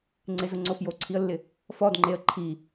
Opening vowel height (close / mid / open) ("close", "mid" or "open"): close